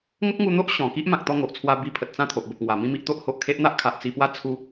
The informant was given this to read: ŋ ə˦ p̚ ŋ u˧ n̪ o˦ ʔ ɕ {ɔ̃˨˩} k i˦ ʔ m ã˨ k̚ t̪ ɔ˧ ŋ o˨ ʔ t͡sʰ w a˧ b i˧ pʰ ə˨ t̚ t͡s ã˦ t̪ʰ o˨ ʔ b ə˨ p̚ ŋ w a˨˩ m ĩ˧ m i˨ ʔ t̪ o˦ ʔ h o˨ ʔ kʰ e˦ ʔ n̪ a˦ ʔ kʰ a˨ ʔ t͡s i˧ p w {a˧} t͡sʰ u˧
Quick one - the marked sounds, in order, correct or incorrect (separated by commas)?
correct, incorrect